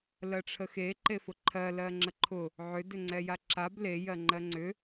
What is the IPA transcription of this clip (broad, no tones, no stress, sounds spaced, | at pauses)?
l ɜ ʈ͡ʂʰ ə x e ǃ e f ʊ ǃʰ ɜ l ɜ ŋ͡ǁ ə ǃʰ ʊ | ʕ ʏ d ʏ ŋ͡ǀ ɛ j a ǁ a b l e j ɜ ŋ͡ǃ ɜ ŋ͡ǀ ʏ